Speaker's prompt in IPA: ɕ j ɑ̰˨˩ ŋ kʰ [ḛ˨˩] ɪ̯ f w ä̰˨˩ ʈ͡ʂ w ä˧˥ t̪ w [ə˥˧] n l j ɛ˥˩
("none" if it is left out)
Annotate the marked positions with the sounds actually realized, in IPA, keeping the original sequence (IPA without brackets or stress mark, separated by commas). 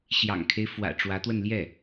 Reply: e˦, ə˥˧